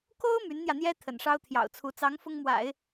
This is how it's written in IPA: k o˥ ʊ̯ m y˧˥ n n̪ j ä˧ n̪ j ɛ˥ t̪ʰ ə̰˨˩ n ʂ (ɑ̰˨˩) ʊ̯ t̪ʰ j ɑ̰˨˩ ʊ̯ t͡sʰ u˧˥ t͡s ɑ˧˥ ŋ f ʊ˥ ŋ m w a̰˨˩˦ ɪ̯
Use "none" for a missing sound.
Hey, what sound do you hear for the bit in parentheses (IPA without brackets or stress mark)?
ɑ˥